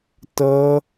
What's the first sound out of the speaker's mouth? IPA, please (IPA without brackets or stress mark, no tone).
t